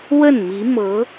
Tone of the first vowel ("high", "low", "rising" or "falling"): falling